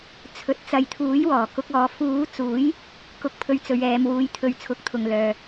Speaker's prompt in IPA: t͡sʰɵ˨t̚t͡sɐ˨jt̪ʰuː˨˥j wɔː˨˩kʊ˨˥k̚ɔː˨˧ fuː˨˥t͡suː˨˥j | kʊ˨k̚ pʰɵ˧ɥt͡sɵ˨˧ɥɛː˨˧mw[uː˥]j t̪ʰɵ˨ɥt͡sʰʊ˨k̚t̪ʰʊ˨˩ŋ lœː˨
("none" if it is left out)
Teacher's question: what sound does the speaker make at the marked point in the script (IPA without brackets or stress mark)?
uː˨˥